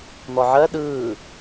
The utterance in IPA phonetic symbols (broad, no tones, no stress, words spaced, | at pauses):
n̪ɔʕɜ ɗɯː